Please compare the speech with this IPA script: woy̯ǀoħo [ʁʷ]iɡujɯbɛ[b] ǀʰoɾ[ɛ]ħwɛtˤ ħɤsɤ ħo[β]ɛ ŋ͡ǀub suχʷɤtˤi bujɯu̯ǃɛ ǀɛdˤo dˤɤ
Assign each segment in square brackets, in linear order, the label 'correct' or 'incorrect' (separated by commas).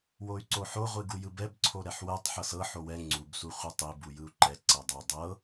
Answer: correct, correct, correct, incorrect